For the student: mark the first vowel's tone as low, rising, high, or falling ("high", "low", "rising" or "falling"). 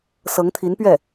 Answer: rising